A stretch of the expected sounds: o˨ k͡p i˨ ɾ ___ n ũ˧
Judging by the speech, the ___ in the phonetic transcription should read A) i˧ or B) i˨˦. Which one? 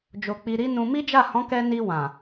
B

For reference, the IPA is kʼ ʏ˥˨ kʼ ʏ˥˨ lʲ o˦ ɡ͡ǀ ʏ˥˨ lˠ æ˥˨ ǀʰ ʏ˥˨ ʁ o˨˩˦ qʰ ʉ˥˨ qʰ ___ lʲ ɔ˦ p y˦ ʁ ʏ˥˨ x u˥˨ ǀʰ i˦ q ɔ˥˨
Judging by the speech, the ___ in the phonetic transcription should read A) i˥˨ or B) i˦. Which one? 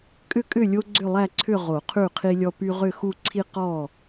B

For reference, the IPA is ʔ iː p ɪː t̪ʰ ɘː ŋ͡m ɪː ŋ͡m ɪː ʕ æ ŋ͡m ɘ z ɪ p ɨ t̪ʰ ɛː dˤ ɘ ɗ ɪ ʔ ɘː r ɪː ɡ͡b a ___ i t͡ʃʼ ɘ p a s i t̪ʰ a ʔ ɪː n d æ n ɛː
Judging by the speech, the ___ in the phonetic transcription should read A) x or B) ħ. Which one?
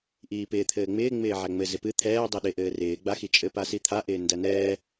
A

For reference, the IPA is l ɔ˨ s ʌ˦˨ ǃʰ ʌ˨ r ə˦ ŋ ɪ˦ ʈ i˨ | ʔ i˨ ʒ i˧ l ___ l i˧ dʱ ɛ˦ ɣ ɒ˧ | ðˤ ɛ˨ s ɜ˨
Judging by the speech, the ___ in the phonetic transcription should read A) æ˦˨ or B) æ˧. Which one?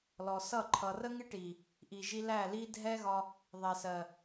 A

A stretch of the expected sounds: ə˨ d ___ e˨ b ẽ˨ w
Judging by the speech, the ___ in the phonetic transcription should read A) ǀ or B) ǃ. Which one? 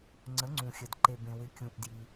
B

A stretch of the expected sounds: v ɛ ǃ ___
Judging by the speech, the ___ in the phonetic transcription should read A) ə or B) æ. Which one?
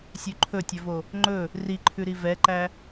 B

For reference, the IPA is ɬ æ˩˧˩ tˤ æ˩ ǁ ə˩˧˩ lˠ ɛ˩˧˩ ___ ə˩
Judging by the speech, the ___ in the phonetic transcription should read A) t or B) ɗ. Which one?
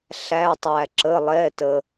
A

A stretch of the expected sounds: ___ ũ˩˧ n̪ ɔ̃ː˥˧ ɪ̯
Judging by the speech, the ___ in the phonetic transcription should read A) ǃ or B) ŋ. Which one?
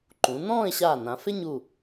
A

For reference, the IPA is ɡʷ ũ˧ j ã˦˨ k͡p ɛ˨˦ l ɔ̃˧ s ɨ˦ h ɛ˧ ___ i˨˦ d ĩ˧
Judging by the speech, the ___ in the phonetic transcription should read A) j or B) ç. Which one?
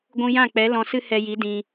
A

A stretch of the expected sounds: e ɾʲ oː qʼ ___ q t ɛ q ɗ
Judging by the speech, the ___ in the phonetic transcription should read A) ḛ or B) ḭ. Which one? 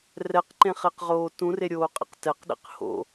A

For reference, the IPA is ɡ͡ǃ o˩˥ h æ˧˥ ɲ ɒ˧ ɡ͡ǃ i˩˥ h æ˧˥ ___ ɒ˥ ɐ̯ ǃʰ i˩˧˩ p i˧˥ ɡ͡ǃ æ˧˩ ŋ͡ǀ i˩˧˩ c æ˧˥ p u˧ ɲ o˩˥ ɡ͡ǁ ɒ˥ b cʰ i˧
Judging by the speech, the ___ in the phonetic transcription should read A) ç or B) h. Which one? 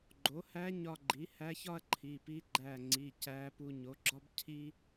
A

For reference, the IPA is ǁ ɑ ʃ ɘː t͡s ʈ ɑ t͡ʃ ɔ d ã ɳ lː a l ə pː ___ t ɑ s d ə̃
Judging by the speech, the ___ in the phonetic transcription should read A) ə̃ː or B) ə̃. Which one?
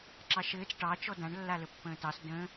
A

